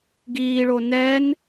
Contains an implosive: no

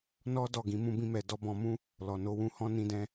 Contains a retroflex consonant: no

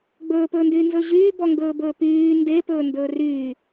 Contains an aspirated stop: no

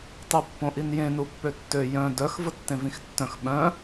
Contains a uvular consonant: no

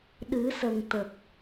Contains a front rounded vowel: no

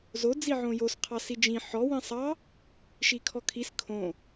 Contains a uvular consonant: yes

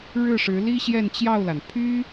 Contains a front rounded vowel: yes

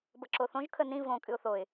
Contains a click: yes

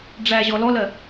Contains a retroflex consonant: yes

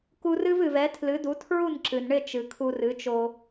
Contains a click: yes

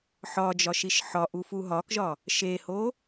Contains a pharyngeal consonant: yes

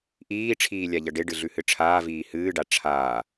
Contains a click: no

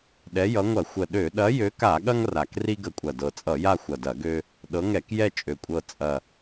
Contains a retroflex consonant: no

